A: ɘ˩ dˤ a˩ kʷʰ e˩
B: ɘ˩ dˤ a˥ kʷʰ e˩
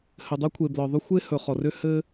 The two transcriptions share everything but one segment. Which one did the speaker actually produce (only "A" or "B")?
B